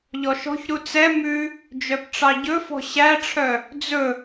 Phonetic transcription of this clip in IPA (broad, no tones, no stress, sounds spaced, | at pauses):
ʎ ɔ ʃ ɔ̤ ç ɾ u t͡s ɛ m ʉ | d͡ʒ œ p ʈ͡ʂ ɑ ɟ ɵ f ɔ̤ ɕ æ ʈ͡ʂʰ œ | d͡z ɵ